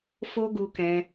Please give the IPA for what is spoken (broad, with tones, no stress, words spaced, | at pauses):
fo˦ɡu˧kɛ̃˧